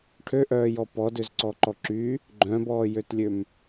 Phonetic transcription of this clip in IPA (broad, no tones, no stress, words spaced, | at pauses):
ʈʰøʔœːjɔ pɔdøzǀɔǃɔ ǁy | ɡ͡ǃœ̃bɔːjøtlʲøm